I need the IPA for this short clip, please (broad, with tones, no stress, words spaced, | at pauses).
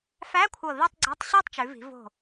fæ˧˥˧kʷʰɤ˧˩ ði˥˧tˤɡ͡ǀɤ˧˥˧tˤ ɕɤ˥˧tˤt͡ʃʉ˩˧vi̤˩˧ vo̤˧˩